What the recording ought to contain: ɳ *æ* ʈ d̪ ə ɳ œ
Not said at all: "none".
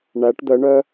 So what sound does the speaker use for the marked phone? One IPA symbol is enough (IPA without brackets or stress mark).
æ